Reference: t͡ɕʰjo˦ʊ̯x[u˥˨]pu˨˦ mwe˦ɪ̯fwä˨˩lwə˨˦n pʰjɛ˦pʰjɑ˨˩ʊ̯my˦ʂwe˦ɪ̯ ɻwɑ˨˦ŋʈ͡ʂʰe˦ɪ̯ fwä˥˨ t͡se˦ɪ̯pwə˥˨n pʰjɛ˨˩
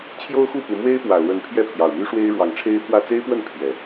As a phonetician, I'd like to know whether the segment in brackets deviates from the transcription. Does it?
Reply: no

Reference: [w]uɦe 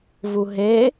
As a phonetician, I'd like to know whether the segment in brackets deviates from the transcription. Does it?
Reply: yes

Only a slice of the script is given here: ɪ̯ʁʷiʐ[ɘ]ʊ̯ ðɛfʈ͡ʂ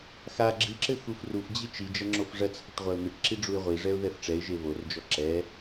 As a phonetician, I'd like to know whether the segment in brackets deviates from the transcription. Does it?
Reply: yes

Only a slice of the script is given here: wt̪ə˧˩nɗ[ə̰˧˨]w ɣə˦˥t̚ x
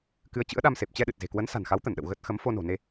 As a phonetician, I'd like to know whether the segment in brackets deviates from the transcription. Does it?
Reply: no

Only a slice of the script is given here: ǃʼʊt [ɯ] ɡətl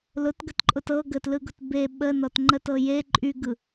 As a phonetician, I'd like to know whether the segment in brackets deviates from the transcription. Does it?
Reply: yes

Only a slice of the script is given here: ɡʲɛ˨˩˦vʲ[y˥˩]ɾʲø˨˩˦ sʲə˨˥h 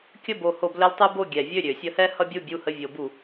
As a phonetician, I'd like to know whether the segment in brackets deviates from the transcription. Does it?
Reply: yes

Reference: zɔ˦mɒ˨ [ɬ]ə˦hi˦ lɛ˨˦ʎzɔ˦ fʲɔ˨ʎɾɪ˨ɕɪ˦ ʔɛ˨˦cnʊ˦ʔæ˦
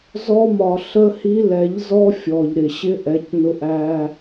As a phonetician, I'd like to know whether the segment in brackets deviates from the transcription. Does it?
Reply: no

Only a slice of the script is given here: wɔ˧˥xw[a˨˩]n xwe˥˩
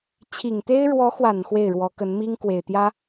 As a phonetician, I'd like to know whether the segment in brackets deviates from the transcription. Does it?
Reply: no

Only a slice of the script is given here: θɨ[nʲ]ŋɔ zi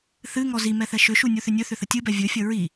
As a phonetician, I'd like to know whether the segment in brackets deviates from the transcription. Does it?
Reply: yes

